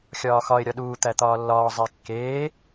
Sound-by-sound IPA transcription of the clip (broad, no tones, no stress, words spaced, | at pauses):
xʲɒːxɒɪ̯ ɾʲɒɗuː t̪æt̪ɒːlːɒː zˤekːeː